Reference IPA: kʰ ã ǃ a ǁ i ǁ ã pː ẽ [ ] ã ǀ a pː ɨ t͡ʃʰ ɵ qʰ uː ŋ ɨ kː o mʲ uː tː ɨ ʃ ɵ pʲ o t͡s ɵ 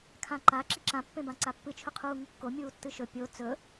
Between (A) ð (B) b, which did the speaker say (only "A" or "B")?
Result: B